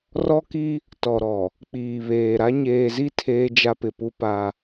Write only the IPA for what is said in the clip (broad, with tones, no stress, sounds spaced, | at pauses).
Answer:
r ɔ˦ k i˦ | t ɔ˨ ɾ ɔ˨ | k͡p iː˨ β eː˨ ɾ a˦ ɲ eː˨ z i˦ tʰ eː˦ d͡ʒ a˦ p ɪ˨ p u˦ p a˦